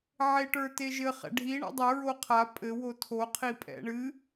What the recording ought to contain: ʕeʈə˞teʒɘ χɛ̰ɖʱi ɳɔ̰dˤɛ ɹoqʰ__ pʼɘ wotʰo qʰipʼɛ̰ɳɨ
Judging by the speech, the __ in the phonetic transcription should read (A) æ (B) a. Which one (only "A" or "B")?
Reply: B